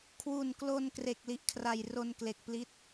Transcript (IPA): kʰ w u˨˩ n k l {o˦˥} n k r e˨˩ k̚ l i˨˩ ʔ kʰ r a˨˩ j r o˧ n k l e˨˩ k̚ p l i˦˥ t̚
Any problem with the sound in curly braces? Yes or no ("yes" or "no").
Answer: yes